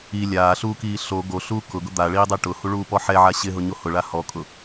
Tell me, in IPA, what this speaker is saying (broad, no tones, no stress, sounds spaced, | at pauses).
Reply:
i lʲ aː ɬ uː k iː ɬ o ɡ o ɬ uː k ʊ ɡ ʊ d̪ a ɭ iː dˤ e ʈ ʊ h u ɭ uː p ɔ ħ ɛ ʕ a ɕ ɪ ɦ ʊ ɲ o h ʊ ɭ a h ɔ kʼ ʊ